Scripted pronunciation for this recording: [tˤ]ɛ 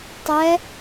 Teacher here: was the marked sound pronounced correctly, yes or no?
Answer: yes